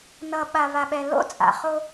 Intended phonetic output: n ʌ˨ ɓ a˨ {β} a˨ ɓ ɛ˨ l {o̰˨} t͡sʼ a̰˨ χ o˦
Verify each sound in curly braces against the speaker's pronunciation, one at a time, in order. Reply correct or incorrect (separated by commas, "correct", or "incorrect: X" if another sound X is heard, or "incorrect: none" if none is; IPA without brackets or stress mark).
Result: correct, incorrect: o̰˦